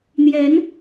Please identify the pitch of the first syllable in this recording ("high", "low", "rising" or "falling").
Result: rising